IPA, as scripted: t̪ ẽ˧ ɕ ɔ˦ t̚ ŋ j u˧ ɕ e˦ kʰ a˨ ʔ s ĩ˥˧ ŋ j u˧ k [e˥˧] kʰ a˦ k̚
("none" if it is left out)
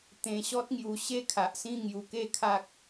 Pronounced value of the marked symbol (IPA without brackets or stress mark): e˥˧